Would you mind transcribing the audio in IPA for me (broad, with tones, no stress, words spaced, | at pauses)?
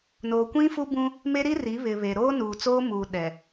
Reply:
noː˨kʷĩ˦fu˦bũ˦ | me˦ɾi˦ri˨˦ βɪ˨ βe˨ ɾoː˦nuː˨t͡soː˦ muː˨ ɗɛ˨